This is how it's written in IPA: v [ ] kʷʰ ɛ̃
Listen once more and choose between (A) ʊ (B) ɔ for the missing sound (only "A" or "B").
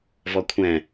B